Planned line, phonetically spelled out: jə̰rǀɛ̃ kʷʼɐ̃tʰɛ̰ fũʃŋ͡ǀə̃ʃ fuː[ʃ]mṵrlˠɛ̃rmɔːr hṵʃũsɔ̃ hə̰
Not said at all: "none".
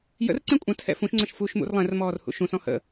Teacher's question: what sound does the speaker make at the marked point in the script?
ʃ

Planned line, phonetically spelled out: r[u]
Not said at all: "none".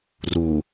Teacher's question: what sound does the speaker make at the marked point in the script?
u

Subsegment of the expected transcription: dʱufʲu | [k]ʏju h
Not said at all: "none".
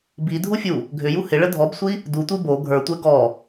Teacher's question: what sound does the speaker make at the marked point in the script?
ɡʱ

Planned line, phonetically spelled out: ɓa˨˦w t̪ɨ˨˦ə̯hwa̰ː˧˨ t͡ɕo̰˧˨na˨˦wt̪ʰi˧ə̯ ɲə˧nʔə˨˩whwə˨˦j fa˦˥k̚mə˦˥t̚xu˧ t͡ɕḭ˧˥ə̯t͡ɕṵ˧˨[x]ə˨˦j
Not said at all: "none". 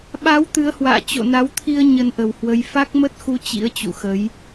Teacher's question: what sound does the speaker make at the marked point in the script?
x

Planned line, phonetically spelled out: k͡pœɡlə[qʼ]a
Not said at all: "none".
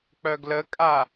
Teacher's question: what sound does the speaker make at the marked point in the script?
kʼ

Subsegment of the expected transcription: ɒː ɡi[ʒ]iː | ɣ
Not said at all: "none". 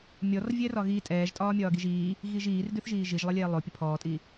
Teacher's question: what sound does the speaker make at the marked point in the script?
ʒ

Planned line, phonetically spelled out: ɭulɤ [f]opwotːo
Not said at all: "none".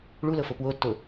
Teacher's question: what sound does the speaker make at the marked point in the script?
f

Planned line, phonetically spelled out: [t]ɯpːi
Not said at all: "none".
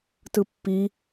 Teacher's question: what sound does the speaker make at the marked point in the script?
t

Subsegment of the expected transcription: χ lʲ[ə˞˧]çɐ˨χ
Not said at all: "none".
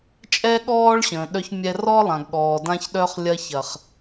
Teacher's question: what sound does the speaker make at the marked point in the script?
ɐ˧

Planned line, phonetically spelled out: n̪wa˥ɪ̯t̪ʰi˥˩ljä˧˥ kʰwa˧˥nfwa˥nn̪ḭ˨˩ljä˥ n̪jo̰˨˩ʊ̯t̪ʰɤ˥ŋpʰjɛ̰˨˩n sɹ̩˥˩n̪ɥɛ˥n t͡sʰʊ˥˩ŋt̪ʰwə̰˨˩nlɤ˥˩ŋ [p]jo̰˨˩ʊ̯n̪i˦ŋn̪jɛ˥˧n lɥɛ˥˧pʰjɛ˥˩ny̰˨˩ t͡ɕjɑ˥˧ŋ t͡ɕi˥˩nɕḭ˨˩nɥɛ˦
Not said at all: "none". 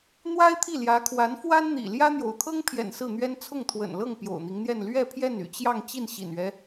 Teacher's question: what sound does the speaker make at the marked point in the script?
p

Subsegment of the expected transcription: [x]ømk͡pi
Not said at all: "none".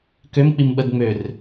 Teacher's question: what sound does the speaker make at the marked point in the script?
k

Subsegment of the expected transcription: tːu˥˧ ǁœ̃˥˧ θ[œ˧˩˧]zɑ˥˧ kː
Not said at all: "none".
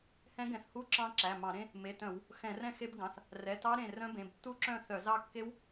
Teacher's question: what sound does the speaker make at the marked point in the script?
œ˧˩˧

